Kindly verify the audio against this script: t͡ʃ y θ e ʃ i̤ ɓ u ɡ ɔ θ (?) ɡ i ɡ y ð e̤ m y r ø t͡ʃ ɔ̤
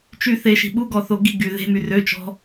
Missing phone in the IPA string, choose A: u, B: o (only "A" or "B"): B